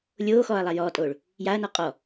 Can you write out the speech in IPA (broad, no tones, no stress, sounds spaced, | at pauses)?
lʲ oː x ɔː ɐ̯ lˠ a j ɔː tʼ oː ɭ | j a ɐ̯ n ɔ qʼ ɔ